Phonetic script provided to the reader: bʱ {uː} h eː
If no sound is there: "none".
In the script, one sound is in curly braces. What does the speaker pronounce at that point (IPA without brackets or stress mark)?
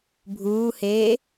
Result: uː